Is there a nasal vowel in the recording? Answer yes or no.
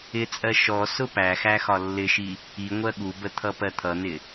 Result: no